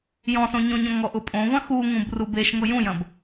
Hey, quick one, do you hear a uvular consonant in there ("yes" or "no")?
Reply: no